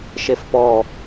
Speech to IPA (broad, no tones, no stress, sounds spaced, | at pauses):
ʃ e f p ɔ